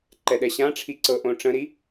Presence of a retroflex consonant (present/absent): present